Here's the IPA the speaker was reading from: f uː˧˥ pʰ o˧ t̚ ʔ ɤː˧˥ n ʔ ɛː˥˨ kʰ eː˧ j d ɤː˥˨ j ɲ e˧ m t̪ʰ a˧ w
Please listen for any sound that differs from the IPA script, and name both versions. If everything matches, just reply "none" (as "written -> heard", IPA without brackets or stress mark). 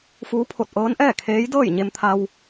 eː˧ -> eː˧˥